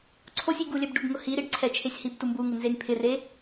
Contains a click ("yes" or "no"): yes